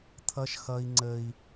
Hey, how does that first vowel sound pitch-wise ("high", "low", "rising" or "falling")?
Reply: high